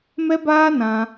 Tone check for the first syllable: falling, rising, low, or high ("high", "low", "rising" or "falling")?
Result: high